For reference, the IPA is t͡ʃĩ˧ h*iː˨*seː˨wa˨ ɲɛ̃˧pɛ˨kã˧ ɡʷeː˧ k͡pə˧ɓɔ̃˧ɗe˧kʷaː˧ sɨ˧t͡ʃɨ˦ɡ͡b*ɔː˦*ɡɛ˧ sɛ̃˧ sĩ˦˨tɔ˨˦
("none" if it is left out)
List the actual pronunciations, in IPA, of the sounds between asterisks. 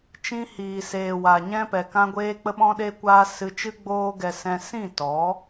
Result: iː˨, oː˦

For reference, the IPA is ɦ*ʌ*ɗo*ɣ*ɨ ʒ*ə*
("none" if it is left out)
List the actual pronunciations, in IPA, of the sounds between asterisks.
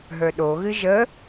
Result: ə˞, ɣ, ə

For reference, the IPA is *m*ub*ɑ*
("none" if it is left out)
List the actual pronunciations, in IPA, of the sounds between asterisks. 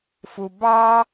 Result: f, ɑ

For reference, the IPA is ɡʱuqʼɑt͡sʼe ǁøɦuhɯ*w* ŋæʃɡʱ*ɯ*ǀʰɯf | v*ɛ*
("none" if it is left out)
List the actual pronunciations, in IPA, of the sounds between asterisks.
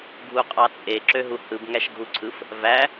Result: b, u, æ

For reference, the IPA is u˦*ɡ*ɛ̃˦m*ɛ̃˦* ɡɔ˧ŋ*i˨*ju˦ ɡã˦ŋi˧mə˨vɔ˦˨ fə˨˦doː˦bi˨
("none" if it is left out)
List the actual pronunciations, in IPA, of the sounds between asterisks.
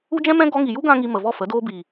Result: d͡ʒ, ɛ̃˦, i˨

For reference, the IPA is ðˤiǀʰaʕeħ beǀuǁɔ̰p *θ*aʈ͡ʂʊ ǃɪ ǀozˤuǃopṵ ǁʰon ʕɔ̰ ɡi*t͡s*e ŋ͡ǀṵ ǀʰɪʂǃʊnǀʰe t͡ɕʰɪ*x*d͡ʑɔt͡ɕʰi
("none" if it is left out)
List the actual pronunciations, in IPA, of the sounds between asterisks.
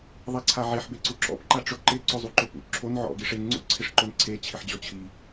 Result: ǃ, ʂ, ħ

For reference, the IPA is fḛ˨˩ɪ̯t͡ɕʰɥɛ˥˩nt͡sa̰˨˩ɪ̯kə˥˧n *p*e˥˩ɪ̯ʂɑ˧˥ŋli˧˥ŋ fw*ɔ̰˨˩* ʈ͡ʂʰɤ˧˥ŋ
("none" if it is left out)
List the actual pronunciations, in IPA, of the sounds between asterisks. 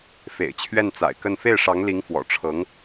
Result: f, ɔ̰˨˩

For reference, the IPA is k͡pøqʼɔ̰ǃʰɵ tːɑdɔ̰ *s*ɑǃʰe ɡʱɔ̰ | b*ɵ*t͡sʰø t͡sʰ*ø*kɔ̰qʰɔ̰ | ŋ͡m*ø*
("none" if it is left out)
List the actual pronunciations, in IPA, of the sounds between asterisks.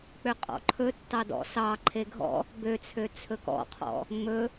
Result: s, ø, ɵ, ɵ

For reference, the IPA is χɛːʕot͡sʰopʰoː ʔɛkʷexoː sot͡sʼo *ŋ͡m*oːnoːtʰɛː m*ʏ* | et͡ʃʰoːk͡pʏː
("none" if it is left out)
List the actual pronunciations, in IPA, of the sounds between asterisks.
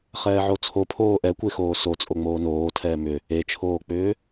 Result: ŋ͡m, ʏ

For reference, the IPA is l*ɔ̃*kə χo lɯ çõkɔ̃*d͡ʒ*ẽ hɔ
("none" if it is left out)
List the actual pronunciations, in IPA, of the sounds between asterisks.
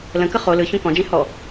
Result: ə̃, d͡ʒ

